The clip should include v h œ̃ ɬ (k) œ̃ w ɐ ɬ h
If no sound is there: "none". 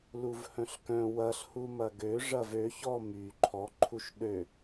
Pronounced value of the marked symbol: k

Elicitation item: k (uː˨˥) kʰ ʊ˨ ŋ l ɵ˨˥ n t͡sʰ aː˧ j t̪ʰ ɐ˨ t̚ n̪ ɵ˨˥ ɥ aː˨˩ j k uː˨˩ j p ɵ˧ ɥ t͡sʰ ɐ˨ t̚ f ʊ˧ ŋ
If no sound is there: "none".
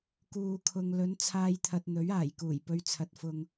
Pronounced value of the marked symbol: uː˨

